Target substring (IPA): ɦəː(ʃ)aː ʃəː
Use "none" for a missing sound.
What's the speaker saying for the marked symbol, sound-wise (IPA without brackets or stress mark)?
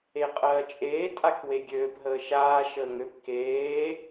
ʃ